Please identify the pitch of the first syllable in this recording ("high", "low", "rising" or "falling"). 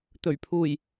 low